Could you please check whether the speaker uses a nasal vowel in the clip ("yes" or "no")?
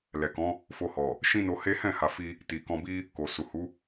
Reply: yes